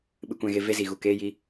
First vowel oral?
yes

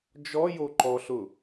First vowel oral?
yes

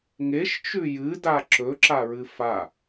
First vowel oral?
yes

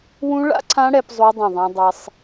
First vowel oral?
no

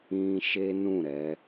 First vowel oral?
no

